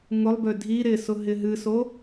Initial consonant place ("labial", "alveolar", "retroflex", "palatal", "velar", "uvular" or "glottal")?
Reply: velar